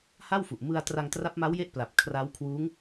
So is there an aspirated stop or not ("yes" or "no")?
yes